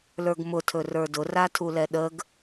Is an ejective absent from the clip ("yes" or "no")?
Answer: yes